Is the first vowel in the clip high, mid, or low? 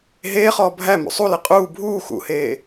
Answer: mid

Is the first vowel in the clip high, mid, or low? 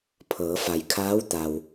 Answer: mid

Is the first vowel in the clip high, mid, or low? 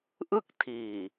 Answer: high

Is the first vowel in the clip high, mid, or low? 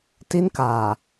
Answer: high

